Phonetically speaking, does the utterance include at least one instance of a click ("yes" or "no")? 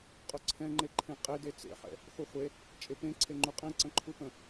yes